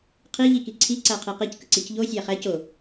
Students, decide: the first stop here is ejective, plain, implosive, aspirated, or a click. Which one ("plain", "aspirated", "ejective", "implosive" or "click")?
aspirated